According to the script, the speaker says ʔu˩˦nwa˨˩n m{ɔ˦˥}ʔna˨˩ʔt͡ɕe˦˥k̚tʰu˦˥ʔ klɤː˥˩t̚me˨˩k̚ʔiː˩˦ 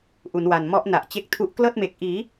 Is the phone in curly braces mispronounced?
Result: no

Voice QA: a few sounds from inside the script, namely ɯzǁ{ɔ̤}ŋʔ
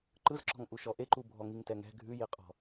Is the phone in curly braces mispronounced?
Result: no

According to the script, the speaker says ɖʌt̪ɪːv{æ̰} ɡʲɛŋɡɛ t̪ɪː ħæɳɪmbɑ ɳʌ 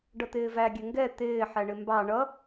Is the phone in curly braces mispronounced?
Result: yes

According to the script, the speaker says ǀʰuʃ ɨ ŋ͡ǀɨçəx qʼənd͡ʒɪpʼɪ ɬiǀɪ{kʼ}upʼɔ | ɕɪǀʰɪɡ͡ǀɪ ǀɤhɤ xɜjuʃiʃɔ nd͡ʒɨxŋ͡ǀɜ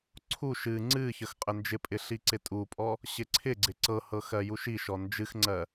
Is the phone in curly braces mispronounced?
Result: yes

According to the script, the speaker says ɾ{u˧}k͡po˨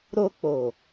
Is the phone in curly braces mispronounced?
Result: yes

